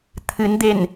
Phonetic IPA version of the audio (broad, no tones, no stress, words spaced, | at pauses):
t̪ʰɨnd̪en